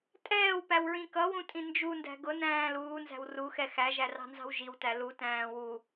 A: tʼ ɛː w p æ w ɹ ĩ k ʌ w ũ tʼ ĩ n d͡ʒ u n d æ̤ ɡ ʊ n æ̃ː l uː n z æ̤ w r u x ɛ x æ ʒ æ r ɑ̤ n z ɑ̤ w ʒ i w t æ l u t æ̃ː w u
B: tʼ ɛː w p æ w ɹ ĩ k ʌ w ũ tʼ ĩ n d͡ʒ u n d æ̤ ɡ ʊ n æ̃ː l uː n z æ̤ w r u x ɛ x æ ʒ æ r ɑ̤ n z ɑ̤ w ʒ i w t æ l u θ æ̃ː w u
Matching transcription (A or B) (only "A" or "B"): A